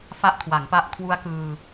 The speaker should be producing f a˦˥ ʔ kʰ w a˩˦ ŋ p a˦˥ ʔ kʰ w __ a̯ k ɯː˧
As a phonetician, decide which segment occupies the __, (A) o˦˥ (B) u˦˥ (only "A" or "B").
B